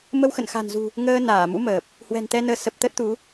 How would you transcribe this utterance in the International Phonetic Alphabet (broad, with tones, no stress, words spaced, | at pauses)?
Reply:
mə˧wxə̰˧˨nxa̤˨˩nzṳ˨˩ | ŋəː˧naː˧˩mṵ˧˥məː˨˩p̚ | hwɛ̤˨˩nt̪ɛ˧nəː˨˦ sə˨˩p̚ t̪ə˦˥t̚t̪u˨˦